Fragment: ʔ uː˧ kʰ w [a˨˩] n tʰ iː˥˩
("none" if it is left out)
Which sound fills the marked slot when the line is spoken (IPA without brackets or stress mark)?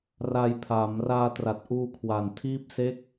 a˨˩